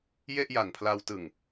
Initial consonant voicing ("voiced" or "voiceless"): voiced